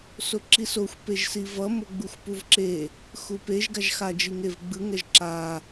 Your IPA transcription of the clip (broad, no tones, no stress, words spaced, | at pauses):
soǁisoxʷ peʒsivʌ moɡ͡buxʷpuvǁe | xupeʒ ɡaʒxa d͡ʒiŋevɡ͡bɯ ŋɛʒǁa